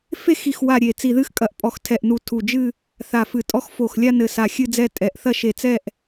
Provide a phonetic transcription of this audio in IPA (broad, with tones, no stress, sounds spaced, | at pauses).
f e˥˧ x i˧˩ x w a˧˩ ɾʲ e˧˩ t͡s i˧˩ ð ɨ˥˧ x kʼ ɐ˧˩ ʔ pʼ ɔ˧˩ x tʰ ɛ˧˩ ʔ n u˧˩ tʰ u˧˩ d͡ʒ ɨ˥˧ | θ a˧˩ f ɨ˧˩ tʼ ɔ˥˧ x f o˧˩ x lʲ a˥˧ n ɘ˧˩ s a˧˩ xʲ ɨ˥˧ d͡z ɛ˥˧ tʼ ɛ˧˩ ʔ θ ɐ˥˧ ʃ e˧˩ t͡s ɛ˥˧ ʔ